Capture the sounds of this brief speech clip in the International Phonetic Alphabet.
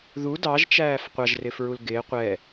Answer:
ð u d ɑ ʒ t͡ʃ æː f qʷ ɑ ʒ r ɪː f ɹ u l ɡ ɪː qʷ ɛ

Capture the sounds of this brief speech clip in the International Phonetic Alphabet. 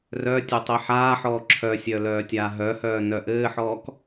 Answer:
r œ tʲ ɘ tˤ i ħ aː ħ ɔː ǁʰ œ sʲ œ l œː tʲ aː ɦ œ h œː n œ ʔ ɘː ħ ɔː k

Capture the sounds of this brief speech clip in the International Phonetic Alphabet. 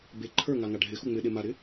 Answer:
b e ǃʰ ə˞ ŋ a ŋ a ɖʱ ɪ x u ŋ͡m ɪ ɗ e m a ɾ ɪ

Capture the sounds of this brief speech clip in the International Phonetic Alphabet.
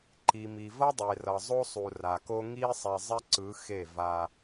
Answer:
ǃ i˨ m i˨ v ʌ˦ dˤ e˨ r ʌ˨ zˤ o˦ sˤ u˨ r a˨ k o˦ ŋ i˦ sˤ ɛ˨ zˤ ɛ˦ ǀ ɯ˨˦ x e˦˨ v a˦

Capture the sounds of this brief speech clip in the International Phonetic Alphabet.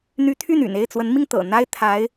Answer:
n̪ y˧˥ t̪ʰ y˥˩ n y̰˨˩ n e˥˩ ɪ̯ t͡s w ə˧˥ n m i˧ ŋ t̪ ɤ̰˨˩ n̪ a˥ ɪ̯ t̪ʰ a˧˥ ɪ̯

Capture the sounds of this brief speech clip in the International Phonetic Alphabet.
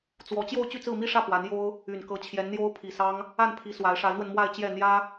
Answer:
t͡s w ɔ˧˥ t͡ɕ j o˥˧ ʊ̯ t͡ɕ y˥˧ t͡s ɹ̩˥˧ m i˥˧ ʂ ä˥˩ p w a˧˥ n j o˥ ʊ̯ | y˨˩ n k ɤ˧˥ t͡ɕʰ j ɛ˧˥ n n̪ j o˥ ʊ̯ pʰ i˨˩ s ɑ˥ ŋ | a˥˩ n pʰ i˧˥ s w a˧˥ ɪ̯ ʂ a˧˥ ɪ̯ n̪ w ə˧ n m w a˥˧ ɪ̯ t͡ɕ j ɛ˥˩ n̪ j ä˥

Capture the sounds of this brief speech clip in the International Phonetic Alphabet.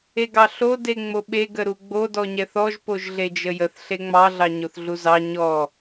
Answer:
e ɡ ɑ ɬ o d e ŋ͡m o ɓ e ɡ ə ɾ u ɡ͡b o d ɔ ɲ ɛ θ ɔ ʒ p o ʒ ɮ e d͡ʒ ə j ə θ ɬ e ŋ͡m ɑ ɮ ɑ ɲ o θ ɮ u z ɑ ɲ ɔ

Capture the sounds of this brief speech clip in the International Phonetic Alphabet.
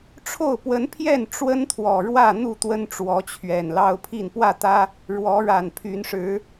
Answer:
ʈ͡ʂʰ o˥˨ ʊ̯ p w ə˨˦ n pʰ j ɛ˥˨ n ʈ͡ʂ w ə˦ n t̪ʰ w ɔ˨˩ ɻ w ä˥˨ n̪ u˥˨ t̪ w ə˦ n ʈ͡ʂ w ɔ˨˦ t͡ɕʰ ɥ ɛ˨˩ n l ɑ˦ ʊ̯ pʰ i˥˨ n p w ä˥˨ t̪ ä˦ | ɻ w ɔ˨˦ ɻ a˨˩ n pʰ y˨˦ n ʂ ɻ̩˨˦

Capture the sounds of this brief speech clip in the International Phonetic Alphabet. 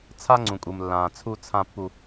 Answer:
t͡sʰ a˦ ŋ͡ǀ ũ˨ kʼ u˨ m lː ãː˨ t͡sʰ u˦ t͡sʰ ã˦ pː u˦

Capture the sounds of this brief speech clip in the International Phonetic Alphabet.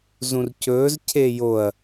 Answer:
z ũ r c ɵː z cʰ e j o ɐ̯

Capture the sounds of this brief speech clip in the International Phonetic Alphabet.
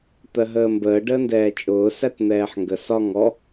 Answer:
t̪ ɜ ɦ əː m b əː ɖ əː n d ɛː t͡ʃʼ ʊː s æ t n̪ ɛː ħ ŋ ɡ ə s ɒ ŋ ɔ

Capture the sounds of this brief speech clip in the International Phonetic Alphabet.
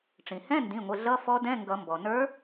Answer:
ʈ͡ʂ ĩ˩ h ɛ̃˧˥˧ n d ĩ˩˧˩ ŋʷ ɪ˩˧˩ ɮ ʌ˧˥˧ f ɔ˧˥ d ɛ̃˧˥˧ ŋ ɡ ʌ˨˩˦ m b ɔ˩ n ə˞˧˥

